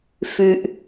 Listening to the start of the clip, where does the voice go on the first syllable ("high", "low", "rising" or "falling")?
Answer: low